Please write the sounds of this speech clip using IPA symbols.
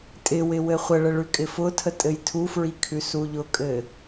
tʼɪwɪ wɘχʷəɭə ɭʉkʼɪfʊtʰə tʼɘjtʰufɹi kʰʉsuʎʊkʼɘ

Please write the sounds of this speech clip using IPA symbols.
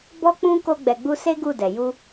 bɔ˦k͡pũ˦ ko˦ɡ͡bɛ˧ɡ͡bu˦ se˦ɡu˦˨ dɛ˨ju˧

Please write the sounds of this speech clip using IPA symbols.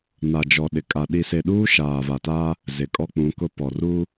na˨d͡ʒɔ˨ ɗɪ˨kʼa˨ ɗi˨se˨ ɗuː˦ʃaː˨va˨ta˦ | zɪ˨ kʼɔ˦k͡pũ˨˦kʊ˦ pɔ˨ru˦

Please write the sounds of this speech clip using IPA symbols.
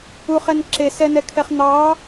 uχɛn ǁesɛnɛkʰɛχ n̪ɑ

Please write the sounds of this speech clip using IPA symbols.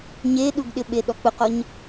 ɲeɗuɡɗɪɓe ɗɔk͡pʊqɔɲ

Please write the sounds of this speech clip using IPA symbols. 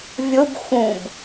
vʲʊb xũb

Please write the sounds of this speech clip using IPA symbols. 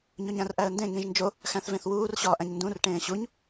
ɲoɲæ̃rʔæə̯ndẽ ŋĩʒnd͡ʒo | xæ̃θvẽθwuːr ɕɒːʔæ̃ɲndũr ʈẽːɕuɲ

